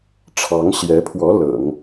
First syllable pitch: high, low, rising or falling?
rising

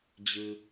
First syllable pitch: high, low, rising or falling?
high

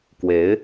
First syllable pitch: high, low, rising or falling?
rising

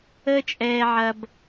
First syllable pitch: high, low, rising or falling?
high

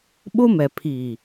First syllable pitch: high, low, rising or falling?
high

